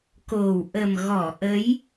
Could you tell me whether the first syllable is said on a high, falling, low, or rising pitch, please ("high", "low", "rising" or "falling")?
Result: low